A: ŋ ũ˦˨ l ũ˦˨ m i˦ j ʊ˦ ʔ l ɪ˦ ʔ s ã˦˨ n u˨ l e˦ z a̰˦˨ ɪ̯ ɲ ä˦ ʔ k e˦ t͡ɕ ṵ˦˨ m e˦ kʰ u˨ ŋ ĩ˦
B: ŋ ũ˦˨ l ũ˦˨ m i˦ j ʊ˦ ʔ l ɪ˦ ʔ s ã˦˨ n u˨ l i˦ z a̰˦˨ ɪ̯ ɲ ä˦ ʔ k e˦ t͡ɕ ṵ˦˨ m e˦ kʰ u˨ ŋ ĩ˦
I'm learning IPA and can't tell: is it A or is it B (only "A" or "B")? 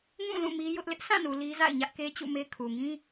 B